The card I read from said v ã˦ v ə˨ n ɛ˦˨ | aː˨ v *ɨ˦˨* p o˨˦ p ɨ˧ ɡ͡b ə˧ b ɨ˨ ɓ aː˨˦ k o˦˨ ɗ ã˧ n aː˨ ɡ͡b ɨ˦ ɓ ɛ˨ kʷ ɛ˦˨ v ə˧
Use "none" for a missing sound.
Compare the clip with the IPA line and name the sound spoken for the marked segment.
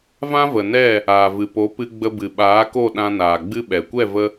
ɨ˨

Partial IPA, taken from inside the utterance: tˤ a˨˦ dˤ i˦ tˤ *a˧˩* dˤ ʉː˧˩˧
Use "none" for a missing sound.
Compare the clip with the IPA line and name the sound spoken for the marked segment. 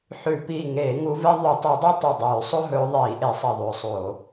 ɐ˧˩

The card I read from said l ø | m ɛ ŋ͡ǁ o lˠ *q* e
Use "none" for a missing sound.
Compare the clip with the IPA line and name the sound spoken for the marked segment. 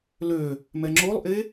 ʔ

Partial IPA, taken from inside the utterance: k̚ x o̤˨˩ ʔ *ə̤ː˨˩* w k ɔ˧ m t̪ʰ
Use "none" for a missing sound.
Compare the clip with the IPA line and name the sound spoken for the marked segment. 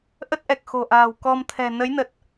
a̤ː˨˩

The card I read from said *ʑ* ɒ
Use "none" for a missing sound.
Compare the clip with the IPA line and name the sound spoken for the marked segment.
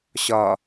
ɕ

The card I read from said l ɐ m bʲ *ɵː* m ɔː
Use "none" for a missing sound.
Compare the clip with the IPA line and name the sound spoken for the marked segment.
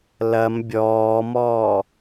ɔː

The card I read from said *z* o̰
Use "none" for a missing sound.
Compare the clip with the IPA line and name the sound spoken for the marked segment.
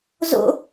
z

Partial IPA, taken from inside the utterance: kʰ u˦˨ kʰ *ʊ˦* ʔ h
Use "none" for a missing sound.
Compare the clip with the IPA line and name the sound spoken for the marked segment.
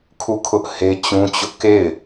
ʊ˦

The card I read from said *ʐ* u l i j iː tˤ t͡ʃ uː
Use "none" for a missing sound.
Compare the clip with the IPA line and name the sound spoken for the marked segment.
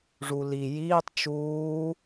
ʐ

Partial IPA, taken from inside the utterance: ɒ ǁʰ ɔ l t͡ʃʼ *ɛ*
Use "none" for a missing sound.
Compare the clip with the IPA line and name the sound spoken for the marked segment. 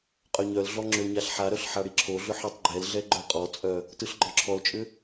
ʏ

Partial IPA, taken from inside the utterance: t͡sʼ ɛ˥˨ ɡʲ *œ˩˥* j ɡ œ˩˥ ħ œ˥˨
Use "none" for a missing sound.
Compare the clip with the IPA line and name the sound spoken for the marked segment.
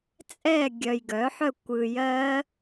œ˨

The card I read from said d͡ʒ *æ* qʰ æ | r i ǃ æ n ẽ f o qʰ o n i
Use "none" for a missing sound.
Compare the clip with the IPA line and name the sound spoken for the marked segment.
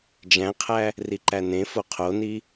æ̃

